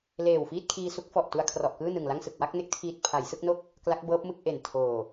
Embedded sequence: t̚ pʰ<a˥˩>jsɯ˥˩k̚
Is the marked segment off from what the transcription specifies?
yes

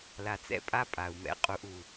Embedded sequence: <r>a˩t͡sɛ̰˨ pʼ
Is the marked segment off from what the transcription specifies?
yes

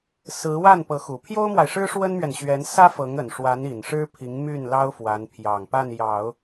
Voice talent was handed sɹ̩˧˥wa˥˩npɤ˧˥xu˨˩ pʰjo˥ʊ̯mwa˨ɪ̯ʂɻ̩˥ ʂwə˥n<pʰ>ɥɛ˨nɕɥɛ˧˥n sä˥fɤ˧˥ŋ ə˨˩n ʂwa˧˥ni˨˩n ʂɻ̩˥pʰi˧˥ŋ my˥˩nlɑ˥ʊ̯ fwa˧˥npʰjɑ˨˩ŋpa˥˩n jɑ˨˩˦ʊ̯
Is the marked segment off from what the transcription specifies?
yes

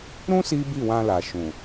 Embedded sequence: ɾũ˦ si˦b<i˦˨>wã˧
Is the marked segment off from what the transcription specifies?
no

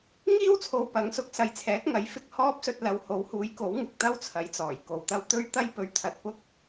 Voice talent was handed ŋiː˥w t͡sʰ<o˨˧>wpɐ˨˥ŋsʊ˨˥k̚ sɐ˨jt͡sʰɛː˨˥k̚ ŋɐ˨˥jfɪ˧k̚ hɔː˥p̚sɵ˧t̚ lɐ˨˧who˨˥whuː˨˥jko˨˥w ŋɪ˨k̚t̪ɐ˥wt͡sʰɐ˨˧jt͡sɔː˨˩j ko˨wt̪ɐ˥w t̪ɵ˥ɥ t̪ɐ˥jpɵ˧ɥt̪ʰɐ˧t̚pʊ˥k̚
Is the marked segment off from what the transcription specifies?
yes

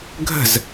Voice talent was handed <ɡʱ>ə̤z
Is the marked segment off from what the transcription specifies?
no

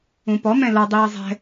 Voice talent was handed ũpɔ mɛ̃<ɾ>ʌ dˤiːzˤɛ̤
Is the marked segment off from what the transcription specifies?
yes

